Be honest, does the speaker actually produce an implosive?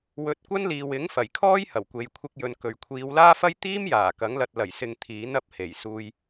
no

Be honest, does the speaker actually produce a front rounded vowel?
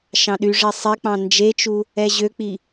yes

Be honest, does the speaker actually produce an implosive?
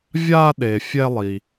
yes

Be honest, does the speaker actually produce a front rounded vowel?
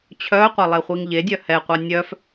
yes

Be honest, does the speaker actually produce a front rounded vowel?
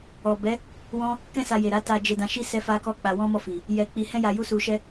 no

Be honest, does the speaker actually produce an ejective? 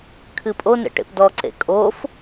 yes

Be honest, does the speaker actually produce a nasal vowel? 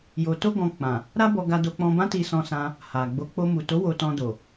yes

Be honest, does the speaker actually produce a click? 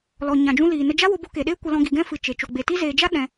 no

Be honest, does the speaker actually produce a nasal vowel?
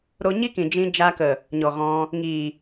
yes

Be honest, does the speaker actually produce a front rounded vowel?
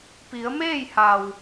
no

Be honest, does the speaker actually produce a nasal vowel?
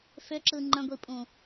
yes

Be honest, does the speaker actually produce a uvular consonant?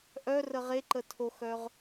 yes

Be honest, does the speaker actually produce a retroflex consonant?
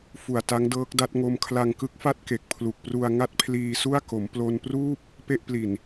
no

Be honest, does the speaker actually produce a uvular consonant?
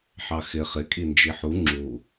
yes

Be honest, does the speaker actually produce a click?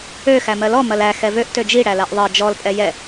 no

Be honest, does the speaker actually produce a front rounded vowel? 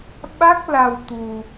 no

